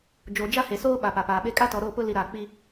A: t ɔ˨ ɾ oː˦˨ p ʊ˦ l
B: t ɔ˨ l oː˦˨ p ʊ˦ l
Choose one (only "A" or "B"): A